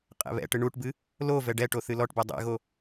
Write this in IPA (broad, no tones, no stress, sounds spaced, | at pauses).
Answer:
qʼ ɛ̰ β ɛ̰ ʈ ɨ ɳ u ʈ b ɨ | l o v ɛ ɖ ɛ ʈ o θ ɨ l ɔ ʈ b e dˤ ḛ ɣ o